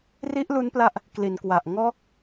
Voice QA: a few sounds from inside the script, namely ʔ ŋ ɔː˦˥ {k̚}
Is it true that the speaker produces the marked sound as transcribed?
yes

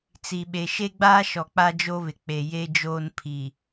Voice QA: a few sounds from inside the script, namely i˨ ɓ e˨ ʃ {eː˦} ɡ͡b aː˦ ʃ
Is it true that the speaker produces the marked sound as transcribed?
no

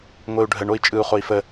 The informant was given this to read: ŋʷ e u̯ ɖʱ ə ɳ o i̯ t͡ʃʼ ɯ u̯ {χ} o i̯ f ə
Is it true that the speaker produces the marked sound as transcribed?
yes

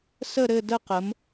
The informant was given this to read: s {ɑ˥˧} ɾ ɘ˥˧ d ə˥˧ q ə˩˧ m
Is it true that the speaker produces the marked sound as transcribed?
no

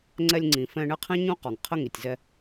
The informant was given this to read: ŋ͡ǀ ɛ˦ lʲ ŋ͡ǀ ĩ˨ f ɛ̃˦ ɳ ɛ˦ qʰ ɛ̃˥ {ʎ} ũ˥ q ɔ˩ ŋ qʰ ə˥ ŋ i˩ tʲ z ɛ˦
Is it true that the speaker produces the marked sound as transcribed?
no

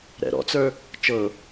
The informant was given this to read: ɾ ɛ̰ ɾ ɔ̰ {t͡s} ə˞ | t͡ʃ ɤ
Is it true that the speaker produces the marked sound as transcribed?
yes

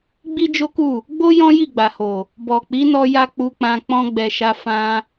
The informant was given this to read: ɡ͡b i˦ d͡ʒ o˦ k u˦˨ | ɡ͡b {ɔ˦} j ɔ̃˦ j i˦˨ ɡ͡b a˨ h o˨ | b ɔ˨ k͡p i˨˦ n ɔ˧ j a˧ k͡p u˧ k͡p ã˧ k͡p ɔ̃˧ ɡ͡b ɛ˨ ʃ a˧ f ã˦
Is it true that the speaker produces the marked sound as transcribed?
no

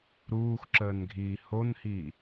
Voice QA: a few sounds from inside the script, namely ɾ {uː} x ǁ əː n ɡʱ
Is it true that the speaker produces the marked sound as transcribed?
yes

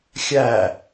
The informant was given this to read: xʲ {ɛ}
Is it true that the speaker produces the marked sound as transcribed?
no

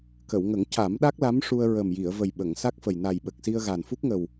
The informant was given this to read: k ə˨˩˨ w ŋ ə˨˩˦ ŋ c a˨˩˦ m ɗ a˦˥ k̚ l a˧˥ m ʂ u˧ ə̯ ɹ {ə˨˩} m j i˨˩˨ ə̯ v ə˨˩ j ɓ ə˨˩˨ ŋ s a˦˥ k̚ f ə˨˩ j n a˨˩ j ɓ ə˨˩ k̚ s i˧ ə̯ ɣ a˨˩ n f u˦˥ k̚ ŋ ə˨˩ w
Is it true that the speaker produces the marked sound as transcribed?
yes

